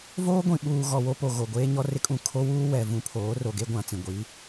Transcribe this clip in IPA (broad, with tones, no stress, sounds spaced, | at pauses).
v oː˦ ɡʷ ĩ˨ ɓ uː˨ ɣ ɔ˨ w o˦ p o˨ ɣ o˨ ɡʷ eː˦ ɲ ɔ˦ r ɪ˦ kʼ ũ˨ kʰ o˦ w uː˦ w ɛ˨ v ũ˦ pʰ oː˨˦ r o˨ ɡ e˦ ɡʷ ã˨ t͡s ĩ˨ ɡʷ iː˨˦